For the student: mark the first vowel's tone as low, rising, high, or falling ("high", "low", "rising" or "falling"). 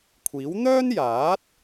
rising